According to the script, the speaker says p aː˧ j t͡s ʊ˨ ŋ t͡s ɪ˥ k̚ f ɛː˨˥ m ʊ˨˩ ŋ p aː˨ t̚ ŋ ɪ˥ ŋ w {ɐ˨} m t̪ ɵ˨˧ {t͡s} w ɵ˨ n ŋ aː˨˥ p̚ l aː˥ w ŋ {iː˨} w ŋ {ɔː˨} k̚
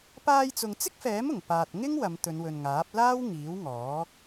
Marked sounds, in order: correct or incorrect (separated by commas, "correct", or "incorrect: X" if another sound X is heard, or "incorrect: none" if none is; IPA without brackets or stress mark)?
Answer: incorrect: ɐ˨˧, incorrect: n, incorrect: iː˨˥, incorrect: ɔː˨˥